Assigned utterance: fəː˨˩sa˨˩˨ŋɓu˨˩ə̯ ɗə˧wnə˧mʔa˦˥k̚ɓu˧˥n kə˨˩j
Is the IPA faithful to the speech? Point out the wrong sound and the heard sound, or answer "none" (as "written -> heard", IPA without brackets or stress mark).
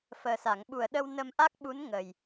k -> ŋ